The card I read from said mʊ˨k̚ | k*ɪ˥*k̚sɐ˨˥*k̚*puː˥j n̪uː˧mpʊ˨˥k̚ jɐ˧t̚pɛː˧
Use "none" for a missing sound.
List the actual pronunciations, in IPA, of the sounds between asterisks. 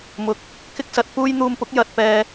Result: ɪ˥, t̚

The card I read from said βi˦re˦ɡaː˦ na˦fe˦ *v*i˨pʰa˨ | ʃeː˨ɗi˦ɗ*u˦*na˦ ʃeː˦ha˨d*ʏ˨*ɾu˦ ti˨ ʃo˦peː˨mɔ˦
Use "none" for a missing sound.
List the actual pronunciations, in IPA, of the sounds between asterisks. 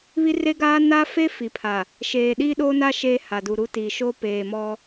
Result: f, o˦, u˨

